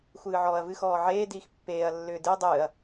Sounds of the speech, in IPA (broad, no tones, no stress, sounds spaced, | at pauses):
xʷ ɨː ʕ ɔː ɐ̯ v ɨ x ɔː ʕ eː d iː x pː eː ɐ̯ lː ʏː d ɨ ɐ̯ dˤ ɨː ɐ̯